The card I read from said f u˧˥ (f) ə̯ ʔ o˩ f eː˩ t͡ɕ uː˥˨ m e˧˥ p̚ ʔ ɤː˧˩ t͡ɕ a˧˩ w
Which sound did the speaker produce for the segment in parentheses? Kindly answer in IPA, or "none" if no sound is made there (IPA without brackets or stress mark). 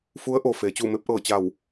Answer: none